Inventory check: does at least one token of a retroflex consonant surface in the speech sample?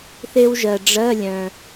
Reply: yes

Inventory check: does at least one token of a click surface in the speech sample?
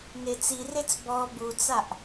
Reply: no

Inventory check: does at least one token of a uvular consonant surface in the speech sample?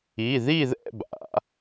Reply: no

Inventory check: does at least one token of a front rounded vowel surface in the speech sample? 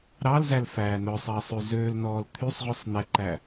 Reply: yes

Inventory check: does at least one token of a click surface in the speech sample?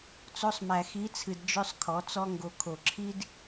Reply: yes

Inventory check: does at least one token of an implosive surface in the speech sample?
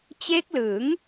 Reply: no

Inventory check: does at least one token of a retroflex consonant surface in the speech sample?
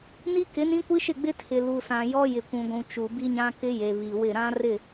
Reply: no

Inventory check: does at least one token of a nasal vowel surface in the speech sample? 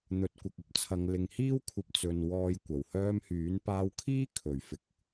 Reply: no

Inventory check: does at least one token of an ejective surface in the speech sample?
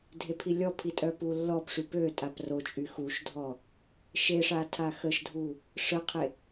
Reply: yes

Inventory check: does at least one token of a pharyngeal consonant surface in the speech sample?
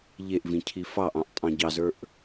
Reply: no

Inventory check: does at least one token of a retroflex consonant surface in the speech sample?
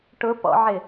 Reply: yes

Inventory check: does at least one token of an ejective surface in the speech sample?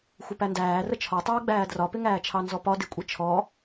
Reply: yes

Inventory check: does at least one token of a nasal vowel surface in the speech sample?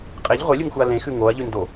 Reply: yes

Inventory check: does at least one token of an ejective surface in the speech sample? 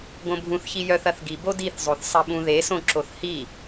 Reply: no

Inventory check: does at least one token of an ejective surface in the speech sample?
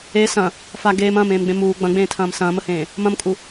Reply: yes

